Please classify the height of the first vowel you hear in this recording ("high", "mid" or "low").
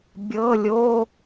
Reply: mid